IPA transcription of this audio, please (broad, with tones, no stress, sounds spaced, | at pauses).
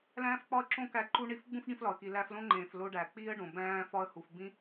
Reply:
l æ̃ː˦ f k͡p ɒ˦ ə̯ ǁ õ˦ k æ˧ ǃ u˦ ɳ i˦˨ f ɡ͡b ũ˦ f ɖ ĩ˧ f l ɒ˨ ə̯ k i˨ l æ˧ f l õ˦ ŋ͡ǃ ẽː˨ f l o˧ ɖ æ˨ k͡p iː˦ ə̯ ɖ õ˨ b æ̃ː˧ f ɒ˧ ə̯ h u˨ f b ĩ˦